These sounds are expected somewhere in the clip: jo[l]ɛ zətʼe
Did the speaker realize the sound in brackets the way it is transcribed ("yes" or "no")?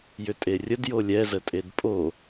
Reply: no